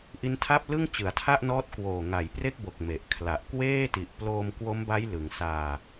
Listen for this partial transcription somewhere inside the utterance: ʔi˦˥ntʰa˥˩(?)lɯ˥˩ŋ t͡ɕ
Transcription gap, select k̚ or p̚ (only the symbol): p̚